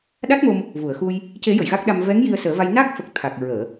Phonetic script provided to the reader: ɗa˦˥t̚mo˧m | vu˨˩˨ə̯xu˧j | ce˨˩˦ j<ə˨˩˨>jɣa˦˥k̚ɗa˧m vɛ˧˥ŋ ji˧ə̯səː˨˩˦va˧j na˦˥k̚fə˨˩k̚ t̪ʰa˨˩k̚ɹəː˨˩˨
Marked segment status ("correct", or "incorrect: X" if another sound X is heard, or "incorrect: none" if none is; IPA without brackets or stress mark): correct